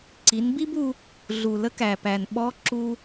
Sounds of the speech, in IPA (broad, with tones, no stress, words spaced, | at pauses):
ǀi˩˧nbi˥bu˧ | ɮu˩lə˧˥k æ˩pæ˩nɓɔ˧˥ ǁu˧